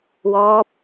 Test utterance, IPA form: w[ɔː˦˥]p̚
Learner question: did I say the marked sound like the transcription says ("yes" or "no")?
yes